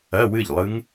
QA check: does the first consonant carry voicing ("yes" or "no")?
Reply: yes